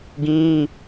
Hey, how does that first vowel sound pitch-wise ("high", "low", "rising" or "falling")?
high